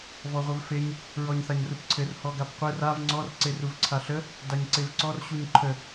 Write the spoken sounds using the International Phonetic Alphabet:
v ɔ ʁʷ ɘ v f e ɲ | ɹ ɔ ɲ θ a ɲ r u p ǀʰ ɘ r h ɔ ɡ a p qʷ e r a v ŋ͡ǀ ɔ r ǀ e r u v ǀʰ a ɬ ə | d a ɲ ǀ e v ǀ ɔ r ɕ u ɲ ǃʰ ə

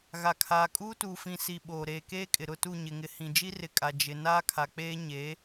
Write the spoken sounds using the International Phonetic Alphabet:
ɣ a˨ kʰ aː˨ kʼ uː˦ t uː˨ f ĩ˨ s i˨ ɓ oː˨ ɾ eː˨ k eː˦ kʼ ɪ˨ ɾ ʊ˦˨ t u˦˨ ɲ ɪ˨ ŋ ɪ˨ h ĩ˨ d͡ʒ i˦ r ɪ˨ kʼ a˨ d͡ʒ ɪ˨ n aː˦ kʰ a˨ k͡p eː˦ ɲ e˨˦

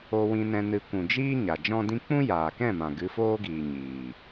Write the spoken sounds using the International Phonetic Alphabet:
o˧ w ĩ˧ n ɛ̃˧ n ɨ˧ kʷ ũ˨ d͡ʒ iː˦ ɲ a˨ d͡ʒ ɔ̃˦ d ĩ˦ k͡p ũ˦ j aː˨ k ɛ̃˦˨ m ã˨ ɡ ɨ˨˦ f oː˦ ɡ iː˨ ɲ iː˨

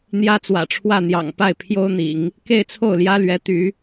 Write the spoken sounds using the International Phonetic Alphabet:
n̪ j ä˥ t͡s w ä̰˨˩ ʈ͡ʂʰ w ä˥˩ n̪ j ɑ̰˨˩ ŋ p a˥˩ ɪ̯ pʰ j o˥ ʊ̯ n̪ ḭ˨˩˦ ŋ | k e˥˧ ɪ̯ t͡sʰ o˥˩ ʊ̯ l j ä˥ l ɥ ɛ˧˥ t̪ y˧˥

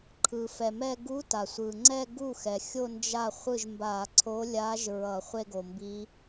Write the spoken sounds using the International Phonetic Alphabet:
ǃʰ ɯ˩ f ɛ˩ m ɛ˥˧ ɡ u˧˥ t a˩ sʷ ɯ˩ ŋ͡ǀ ɛ˥˧ ɡ u˥˩ x ɛ˩ xʲ o˥˧ n d͡ʒ a˥˩ χʷ ɯ˥˩ ʒ m b a˧˩˧ ǀʰ o˧˥ lʲ a˧˥ ʒ ɹ ʌ˧˩˧ χʷ e˥˧ ɡ o˩ m b i˧˥

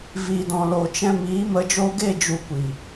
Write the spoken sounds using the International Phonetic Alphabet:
v iː˨ d ɔ̃˨ l o˨ t͡ʃ ɛ̃˧ m iː˨˦ m ə˧ d͡ʒ oː˧ ɡ e˦˨ d͡ʒ u˧ kʷ i˨

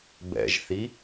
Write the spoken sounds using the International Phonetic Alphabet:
b ɛ̰ ʒ θ i

